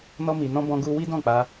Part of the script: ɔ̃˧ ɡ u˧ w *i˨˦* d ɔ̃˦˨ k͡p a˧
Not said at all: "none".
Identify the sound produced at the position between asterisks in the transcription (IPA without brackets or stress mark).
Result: i˦